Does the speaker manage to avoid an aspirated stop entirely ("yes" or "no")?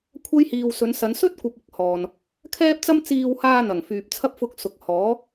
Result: no